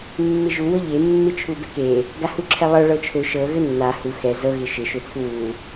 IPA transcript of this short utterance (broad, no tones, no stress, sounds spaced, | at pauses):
mː ɪ ʒ u w ɤ ʎ e mː ɪ t͡ʃʰ u b ɛ k e | ɡ a h u ǁʰ ɛ lˠ ɤ ɭ ɤ t͡ʃʰ ø ʃ ɤ ɣ ø nː a h u x ɛ z ɤ ɣ ɪ ʃ ɪ ʃ ø t͡sʰ u w u